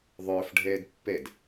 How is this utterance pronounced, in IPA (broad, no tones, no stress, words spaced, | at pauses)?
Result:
ðˤɵːfɖʱeːd pːed